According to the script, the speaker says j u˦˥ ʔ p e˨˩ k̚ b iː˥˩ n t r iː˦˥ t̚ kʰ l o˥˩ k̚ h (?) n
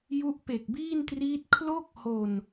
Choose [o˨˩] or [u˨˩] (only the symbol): o˨˩